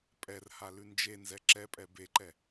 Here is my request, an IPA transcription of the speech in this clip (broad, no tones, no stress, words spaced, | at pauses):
pʼɛrha lʉnd͡ʒenzɛ ǁɛpʼɛ beǃɛ